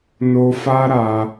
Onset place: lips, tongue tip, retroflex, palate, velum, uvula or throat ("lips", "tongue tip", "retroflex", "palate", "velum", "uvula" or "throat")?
tongue tip